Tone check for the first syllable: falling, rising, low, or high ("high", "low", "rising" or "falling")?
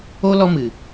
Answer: high